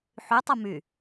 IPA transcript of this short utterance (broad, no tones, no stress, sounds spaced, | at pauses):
ħ y tˤ ɯ m y